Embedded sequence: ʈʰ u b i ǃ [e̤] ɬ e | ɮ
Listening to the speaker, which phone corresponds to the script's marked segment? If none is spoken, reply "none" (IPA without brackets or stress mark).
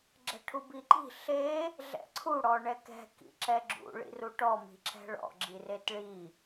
i̤